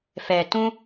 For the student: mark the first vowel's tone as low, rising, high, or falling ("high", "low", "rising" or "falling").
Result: low